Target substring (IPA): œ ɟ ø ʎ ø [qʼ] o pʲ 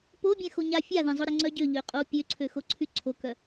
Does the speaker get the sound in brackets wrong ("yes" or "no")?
no